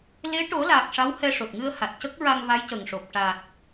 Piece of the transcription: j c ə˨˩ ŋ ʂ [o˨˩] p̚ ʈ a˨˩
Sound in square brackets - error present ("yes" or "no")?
no